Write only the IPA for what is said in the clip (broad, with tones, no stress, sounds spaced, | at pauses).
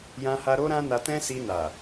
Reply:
j ã˧ h a˧ ɾ o˦ ɾ ã˦ n a˧ t ɛ̃˦ s i˧ n a˨